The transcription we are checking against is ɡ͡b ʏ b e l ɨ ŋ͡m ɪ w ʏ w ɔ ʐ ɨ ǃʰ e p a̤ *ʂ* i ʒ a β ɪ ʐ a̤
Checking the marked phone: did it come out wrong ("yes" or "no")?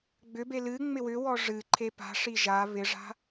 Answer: no